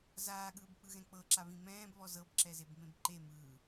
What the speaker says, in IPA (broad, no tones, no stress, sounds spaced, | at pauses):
z aː ɠ ɯː b k͡p ɯ ɣ ɛ̃ k͡p ɤ ǁ a β ĩ m ɛ̃ː b β ɔ z ɤ b ǁ ɛ z e b m ẽ b ǃ e m ɯː